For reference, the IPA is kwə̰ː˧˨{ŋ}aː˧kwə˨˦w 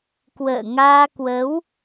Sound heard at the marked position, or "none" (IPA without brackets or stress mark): ŋ